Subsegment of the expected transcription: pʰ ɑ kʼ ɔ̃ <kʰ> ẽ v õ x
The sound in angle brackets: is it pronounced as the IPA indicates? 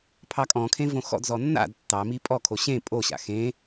yes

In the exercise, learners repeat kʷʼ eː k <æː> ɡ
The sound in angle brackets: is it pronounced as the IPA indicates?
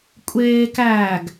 yes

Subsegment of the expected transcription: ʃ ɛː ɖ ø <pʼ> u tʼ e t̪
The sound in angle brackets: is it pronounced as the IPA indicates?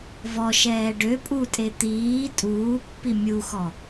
yes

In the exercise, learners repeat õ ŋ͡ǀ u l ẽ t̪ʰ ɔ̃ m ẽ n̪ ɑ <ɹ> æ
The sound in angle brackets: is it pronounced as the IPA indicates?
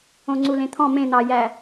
no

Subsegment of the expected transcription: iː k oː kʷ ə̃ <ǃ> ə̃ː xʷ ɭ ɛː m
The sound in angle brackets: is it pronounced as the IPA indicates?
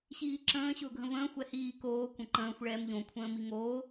yes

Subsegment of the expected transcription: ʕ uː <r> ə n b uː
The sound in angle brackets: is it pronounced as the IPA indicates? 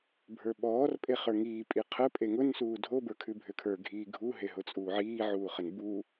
no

